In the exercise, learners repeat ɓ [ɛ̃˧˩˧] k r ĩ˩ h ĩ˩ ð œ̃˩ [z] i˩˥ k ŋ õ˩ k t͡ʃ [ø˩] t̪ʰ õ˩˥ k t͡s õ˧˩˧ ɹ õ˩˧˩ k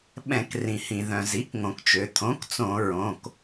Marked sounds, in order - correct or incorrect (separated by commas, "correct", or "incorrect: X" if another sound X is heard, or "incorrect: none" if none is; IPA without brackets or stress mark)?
correct, correct, correct